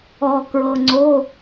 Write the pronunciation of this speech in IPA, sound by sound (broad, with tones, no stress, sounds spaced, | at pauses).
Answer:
ɔ˩ k ɹ ɤ˩ ŋ͡ǀ o˩˧˩